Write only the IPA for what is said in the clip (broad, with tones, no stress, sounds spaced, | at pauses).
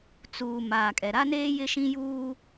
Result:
t͡s uː˨ m aː˨ kʼ ɛ˨ ɾ a˦ n eː˦ j ɪ˦ ʃ ĩ˦ j uː˦